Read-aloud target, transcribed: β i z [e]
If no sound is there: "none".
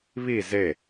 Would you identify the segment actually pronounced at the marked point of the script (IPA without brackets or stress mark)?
e